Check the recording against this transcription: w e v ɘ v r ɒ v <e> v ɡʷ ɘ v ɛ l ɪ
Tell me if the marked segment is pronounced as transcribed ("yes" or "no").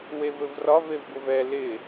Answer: yes